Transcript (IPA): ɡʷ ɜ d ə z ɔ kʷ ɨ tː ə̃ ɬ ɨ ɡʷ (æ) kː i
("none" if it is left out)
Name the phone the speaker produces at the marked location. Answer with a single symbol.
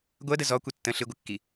ə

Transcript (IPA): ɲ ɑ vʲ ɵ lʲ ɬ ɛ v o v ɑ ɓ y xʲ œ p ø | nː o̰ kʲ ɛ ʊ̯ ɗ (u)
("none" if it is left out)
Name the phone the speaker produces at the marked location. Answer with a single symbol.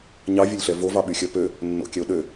ø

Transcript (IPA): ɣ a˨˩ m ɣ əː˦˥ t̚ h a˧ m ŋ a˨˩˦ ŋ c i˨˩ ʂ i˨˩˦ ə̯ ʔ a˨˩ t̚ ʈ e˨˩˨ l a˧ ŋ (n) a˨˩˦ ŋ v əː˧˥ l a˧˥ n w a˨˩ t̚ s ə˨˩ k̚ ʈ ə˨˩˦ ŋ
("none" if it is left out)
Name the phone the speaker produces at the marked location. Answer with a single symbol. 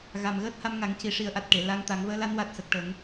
t̪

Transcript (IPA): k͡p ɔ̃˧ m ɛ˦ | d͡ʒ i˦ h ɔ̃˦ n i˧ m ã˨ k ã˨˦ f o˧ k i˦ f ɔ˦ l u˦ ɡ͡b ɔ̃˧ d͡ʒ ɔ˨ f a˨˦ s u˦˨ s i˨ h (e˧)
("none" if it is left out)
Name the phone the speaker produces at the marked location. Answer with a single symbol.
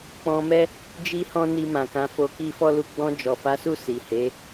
e˨˦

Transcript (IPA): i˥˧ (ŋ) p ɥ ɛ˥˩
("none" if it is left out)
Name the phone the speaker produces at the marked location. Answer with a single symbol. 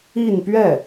n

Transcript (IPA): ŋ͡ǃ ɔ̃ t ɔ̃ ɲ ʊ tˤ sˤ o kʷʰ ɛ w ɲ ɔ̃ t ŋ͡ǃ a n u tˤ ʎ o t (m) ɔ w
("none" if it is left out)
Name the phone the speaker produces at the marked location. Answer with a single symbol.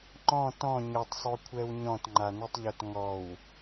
ŋ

